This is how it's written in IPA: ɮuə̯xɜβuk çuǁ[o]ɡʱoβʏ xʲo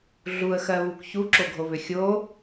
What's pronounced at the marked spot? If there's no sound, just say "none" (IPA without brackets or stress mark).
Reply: o